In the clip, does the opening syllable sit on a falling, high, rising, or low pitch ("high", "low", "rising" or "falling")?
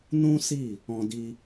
high